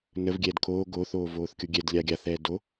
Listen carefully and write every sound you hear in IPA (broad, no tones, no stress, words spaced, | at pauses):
nəv ɡʲɛːdkʰoː ɡoːθ oːvoːθkʲoɡʲɛd lʲaɡʲaθ ɛːdo